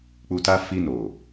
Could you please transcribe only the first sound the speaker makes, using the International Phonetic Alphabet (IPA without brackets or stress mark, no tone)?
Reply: k͡p